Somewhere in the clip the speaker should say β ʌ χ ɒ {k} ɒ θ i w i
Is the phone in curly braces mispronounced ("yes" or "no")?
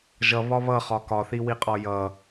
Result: no